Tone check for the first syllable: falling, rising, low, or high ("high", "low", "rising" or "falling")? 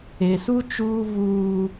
low